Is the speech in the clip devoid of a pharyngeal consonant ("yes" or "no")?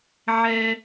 no